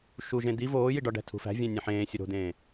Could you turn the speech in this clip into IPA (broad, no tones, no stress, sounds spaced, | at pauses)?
ʃ u ʒ ẽ d̪ i v oː j i ɖ ɒ ɖ æ̤ tʰ ṳ f æ̤ vʲ æ̃ nʲ ẽ ħ ẽː sʲ o ɾ o̤ d̪ ẽː